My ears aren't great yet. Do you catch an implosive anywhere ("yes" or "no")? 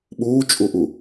yes